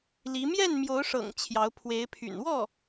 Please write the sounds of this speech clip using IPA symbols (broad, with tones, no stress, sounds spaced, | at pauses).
l i˧˥ m j ɛ˥˩ n m j o˧˥ ʊ̯ ʂ ɤ̰˨˩ ŋ t͡ɕʰ j ɑ˧˥ ʊ̯ pʰ w e˧˥ ɪ̯ pʰ y̰˨˩ n w ɔ˥˩